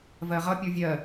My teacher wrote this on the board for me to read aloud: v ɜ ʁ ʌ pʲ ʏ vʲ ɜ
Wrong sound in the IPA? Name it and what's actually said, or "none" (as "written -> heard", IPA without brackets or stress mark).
ʏ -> u